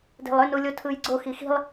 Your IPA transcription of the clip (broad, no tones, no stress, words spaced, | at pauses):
de̤lˠønulʲo tʰɯjɡ͡ǀo xixi̤lˠ